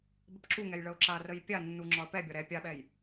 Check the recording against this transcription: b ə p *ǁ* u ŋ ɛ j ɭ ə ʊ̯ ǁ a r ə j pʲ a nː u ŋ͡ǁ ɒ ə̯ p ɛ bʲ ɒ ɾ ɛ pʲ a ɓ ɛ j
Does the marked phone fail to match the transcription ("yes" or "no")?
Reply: no